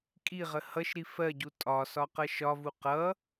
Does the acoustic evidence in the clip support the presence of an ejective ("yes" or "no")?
yes